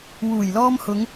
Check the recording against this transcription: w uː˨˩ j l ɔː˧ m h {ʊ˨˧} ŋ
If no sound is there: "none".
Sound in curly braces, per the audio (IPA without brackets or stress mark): ʊ˨˧